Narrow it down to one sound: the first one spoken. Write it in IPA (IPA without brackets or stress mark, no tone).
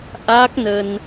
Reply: ʔ